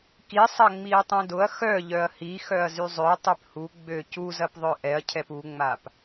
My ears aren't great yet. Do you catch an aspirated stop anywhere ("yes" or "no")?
yes